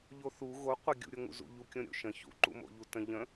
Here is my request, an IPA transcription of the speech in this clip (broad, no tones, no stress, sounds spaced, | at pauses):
ʎ o θ u ɣ o qʷ ə ɡʲ ṵ ɾʲ o ŋ ṵ z ṵ ʎ u kʲ õ ɾʲ o̰ ʃ ə̃ ç ṵ ǃ ṵ m o̰ ʎ u t ə̃ ʎ ə̃